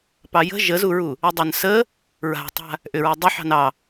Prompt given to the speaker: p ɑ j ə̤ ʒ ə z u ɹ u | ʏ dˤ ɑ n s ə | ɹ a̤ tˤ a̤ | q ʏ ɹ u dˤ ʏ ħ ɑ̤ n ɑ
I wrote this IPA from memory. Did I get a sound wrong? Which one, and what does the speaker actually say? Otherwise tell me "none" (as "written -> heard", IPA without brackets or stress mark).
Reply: q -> ʔ